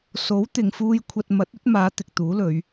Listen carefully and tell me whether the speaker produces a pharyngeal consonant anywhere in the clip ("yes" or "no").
no